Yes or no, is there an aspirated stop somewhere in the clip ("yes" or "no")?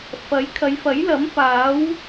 yes